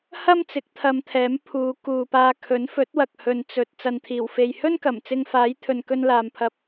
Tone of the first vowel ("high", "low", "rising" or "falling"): high